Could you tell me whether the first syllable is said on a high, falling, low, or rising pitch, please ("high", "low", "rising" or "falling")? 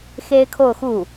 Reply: high